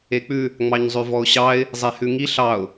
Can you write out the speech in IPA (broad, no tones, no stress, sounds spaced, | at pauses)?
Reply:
e k͡p ʉ | ŋ͡m ɑ ɲ zˤ ʉ v ɔ ʊ̯ ɕ ɑ ɪ̯ | zˤ e h ʉ ŋ i ɬ ɑ ʊ̯